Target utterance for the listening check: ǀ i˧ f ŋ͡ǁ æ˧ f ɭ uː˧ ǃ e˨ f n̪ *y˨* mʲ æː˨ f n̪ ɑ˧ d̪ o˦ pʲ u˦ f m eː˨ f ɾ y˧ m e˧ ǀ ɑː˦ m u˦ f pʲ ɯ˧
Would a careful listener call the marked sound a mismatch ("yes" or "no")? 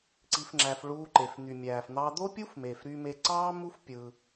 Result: no